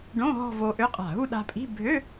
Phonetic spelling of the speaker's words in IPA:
ɖõ˧˥˧ ɦɔ̤˥˧vo˧ʔø˧˥˧ qʼa̤˧˩ ɦu˥˧ɗa̤˧pʼi̤˧˥˧ bʱø˧˥˧

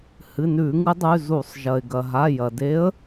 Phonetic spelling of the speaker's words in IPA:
hɨ˩˧˩nʉ˧˩˧ŋɨ˨˦dˤʉ˩˧˩ zu˧˩˧sˤ ʒɐ˩ɪ̯ɡɐ˩ɦa˩˧˩ jɐ˩de˨˦ə̯

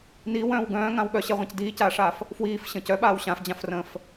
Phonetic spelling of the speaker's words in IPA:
niːwœ̃ːw ɡœ̃ːŋãw ɠœɕɛʁʷãc diːcaːʂaːf | fwiːfɕə̃ːc œɓaːw ɕãfd͡ʑãfrə̃ːf

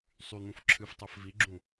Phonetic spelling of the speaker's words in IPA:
sˤyn̪ũf ǁʰɨftˤɜf viɡ͡ǁũ

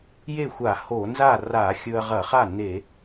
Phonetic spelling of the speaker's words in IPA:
je˥˩xʷa˧˩˧ ho˧˩˧ nza˥˩ ra˧˩˧ xʲɵ˧ɐ̯ʁɐ˧˩˧χa˥˩ ne˧˩˧

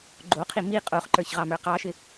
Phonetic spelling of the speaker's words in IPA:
ɡ͡ǃoqʰi mi qʼoχǃə˞çʁɑmə˞ qɑʃɪ

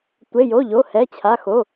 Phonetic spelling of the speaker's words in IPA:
tʷe˩˧˩jo˩˧˩ʎo˩˧˩ hɛ˩˧˩t͡ɕʰa˩˧˩xo˩˧˩

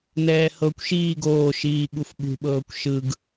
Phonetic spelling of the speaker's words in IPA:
nɛːhɤkʷʃiː ɡoːʃiː ɠufɓṳɓɤːkʷ ʃɯɡ

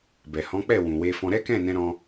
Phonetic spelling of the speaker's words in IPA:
bɛ˨ hɔ̃˨˦k͡pɛ˦˨ wũ˨we˧fɔ̃˧ ɾɛ˦kɛ̃˦˨nɛ̃˧ɾɔ̃˧

